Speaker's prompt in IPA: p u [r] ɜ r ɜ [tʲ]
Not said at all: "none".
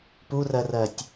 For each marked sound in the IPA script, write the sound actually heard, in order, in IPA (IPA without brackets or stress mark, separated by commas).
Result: r, tʲ